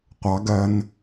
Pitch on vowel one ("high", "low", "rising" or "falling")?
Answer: rising